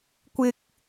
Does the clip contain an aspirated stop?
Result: no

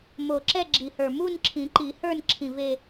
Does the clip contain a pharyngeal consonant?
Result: no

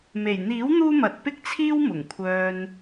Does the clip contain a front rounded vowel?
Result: yes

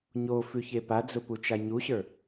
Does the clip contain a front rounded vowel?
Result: no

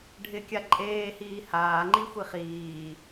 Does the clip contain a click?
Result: yes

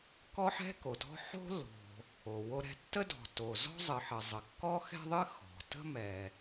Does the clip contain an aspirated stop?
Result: no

